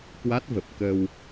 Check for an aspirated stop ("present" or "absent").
absent